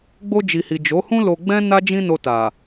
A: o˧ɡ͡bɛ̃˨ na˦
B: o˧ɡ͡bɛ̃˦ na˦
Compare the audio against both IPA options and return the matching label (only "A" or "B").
B